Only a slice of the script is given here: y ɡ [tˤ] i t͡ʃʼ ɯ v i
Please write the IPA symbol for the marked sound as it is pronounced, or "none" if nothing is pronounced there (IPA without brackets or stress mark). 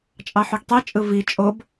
tˤ